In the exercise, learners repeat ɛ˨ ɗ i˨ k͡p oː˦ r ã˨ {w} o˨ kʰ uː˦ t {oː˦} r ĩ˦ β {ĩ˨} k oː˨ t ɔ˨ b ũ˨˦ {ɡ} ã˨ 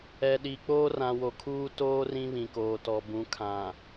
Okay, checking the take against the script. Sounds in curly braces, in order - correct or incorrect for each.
correct, correct, correct, incorrect: kʰ

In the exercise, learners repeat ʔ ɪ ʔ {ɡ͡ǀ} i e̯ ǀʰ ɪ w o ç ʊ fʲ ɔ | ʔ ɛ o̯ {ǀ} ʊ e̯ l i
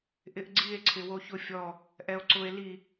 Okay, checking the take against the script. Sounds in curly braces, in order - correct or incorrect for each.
correct, correct

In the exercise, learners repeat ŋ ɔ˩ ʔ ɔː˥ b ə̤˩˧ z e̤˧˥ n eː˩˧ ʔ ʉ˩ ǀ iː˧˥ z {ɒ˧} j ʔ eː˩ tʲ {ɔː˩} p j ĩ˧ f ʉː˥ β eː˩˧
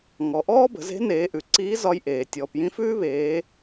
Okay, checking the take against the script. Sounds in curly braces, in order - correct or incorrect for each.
correct, correct

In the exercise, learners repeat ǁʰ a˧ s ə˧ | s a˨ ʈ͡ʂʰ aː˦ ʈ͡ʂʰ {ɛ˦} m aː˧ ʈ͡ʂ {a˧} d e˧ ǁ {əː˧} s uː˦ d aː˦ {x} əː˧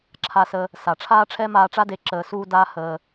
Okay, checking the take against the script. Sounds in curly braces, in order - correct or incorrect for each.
correct, incorrect: a˦, correct, incorrect: h

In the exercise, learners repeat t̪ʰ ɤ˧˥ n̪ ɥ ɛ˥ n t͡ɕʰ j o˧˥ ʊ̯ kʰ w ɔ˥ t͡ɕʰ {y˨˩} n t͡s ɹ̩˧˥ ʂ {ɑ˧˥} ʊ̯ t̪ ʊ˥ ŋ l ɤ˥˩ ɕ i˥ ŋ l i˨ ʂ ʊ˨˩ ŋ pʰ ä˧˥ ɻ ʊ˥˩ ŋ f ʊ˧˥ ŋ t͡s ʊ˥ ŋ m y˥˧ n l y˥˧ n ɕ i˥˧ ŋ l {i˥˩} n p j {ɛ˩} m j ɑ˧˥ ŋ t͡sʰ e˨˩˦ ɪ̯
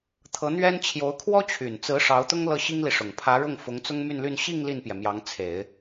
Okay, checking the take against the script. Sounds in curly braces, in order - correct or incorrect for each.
correct, correct, correct, correct

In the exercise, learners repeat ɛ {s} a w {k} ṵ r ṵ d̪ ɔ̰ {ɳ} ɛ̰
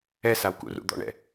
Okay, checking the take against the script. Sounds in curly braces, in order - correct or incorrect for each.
correct, correct, correct

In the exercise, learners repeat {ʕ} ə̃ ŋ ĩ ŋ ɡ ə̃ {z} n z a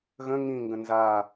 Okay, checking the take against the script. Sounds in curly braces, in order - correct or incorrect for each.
incorrect: ɣ, incorrect: none

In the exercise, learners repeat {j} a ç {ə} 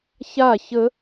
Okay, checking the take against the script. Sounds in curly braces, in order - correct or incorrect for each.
incorrect: ç, correct

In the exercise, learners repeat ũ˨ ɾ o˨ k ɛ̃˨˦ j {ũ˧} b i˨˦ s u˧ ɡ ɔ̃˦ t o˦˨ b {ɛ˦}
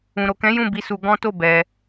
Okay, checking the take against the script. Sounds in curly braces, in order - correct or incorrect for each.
incorrect: ũ˦˨, incorrect: ɛ˧

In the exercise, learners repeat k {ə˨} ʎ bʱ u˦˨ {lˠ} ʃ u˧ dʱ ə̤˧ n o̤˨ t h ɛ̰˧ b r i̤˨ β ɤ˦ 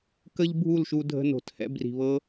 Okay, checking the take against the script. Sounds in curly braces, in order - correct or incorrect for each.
incorrect: ə˦, incorrect: l

